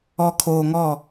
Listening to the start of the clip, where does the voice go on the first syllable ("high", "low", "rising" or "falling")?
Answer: low